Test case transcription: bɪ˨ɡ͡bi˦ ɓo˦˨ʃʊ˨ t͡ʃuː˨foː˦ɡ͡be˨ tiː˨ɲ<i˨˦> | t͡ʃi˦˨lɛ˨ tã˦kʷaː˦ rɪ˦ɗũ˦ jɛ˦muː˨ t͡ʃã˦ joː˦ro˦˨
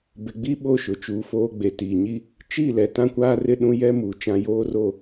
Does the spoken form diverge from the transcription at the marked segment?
yes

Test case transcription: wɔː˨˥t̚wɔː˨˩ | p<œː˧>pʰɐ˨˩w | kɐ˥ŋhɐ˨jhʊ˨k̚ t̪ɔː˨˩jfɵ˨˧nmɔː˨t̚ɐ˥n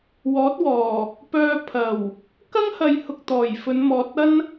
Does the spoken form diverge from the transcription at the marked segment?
no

